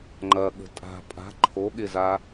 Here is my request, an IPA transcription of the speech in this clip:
ŋ͡ǃ ɐ ɠ ə̤ tʼ a̤ pʼ a̤ ǃʰ o ɠ ɪ z a

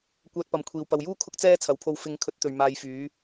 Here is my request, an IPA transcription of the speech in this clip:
kʷ œː˧ t̚ p ɐ˨ m kʷʰ iː˨ w p ɐ˨ w j uː˥ kʰ ʊ˥ k̚ t͡s ɛː˥ t͡sʰ ɐ˨˧ w pʰ o˧ w f ɪ˨˥ ŋ kʰ ɵ˨˥ t̚ t̪ ɵ˨ ɥ m aː˧ j f yː˨˥

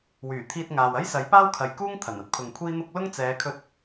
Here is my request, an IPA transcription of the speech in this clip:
w yː˨˩ t̪ʰ iː˧ t̚ ŋ aː˨ w ɐ˥ j s ɐ˨˥ j p aː˥ w kʰ ɐ˨ j k uː˥ ŋ t̪ʰ ɐ˨˩ n ɐ˥ t̚ pʰ ʊ˨ ŋ kʷʰ iː˥ n̪ ʊ˥ k̚ l ʊ˥ ŋ t͡s ɛː˨˧ kʰ ɵ˧ t̚

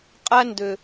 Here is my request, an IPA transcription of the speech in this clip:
qʼ æ˦ n d ø˨

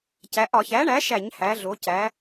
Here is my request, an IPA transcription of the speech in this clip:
c æ˩˧ ʔ ɒ˧˩˧ ç æ˩˥ ɳ æ˩˥ ʃ æ˧˩˧ ɲ h æ˩˧ ɮ o˩˧ c æ˩˧

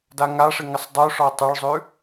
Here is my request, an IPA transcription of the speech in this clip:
d a ŋ a ʂ ɪ ŋ ɪ sˤ dˤ ʉ ʂ ɔ tˤ ɵ ɭ zˤ ʉ

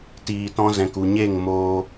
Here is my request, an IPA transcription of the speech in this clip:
t iː˨ t ɔ̃˧ z ɛ̃˨ k u˨ ɲ e˦˨ ŋ m oː˧

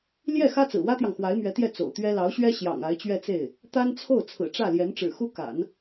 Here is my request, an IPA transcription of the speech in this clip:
l j ɛ˥˩ x ä˥ t͡s ɹ̩˨˩ w ä˥ t̪ j ɑ˨ ŋ x w a˧˥ ɪ̯ m ɥ ɛ˧˥ t̪ j ɛ˥˩ t͡s o̰˨˩ ʊ̯ t̪ ɥ ɛ˥ l ɑ˧˥ ʊ̯ ɕ ɥ ɛ˥ ɕ j ɑ̰˨˩ ŋ a˧˥ ɪ̯ t͡ɕ ɥ ɛ˥˧ t͡s e˥˩ ɪ̯ | t̪ a˥ n t͡sʰ o˥˩ ʊ̯ t͡sʰ ɹ̩˨˩ ʈ͡ʂ ä˥˩ l j ɛ˧˥ n ʈ͡ʂ ɻ̩˨˩ x u˥ k a̰˨˩˦ n

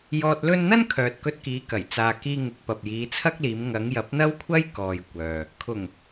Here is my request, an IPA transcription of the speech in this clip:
j ɔː˧ t̚ l ɵ˥ n n̪ ɐ˥ n kʰ œː˨ t̚ k ɵ˧ t̚ k iː˨˧ k ɐ˨˩ j t͡s aː˨ k iː˧ ŋ ɪ˨˥ k̚ p ɐ˨ p̚ j iː˨˧ t͡sʰ ɐ˥ k̚ l iː˨˧ m ŋ ɐ˨˧ ŋ j ɐ˨˥ p̚ n̪ ɐ˥ w kʷʰ ɐ˥ j k ɔː˨ j kʷ œː˨ | kʰ ʊ˨˩ ŋ

